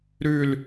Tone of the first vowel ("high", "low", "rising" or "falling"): falling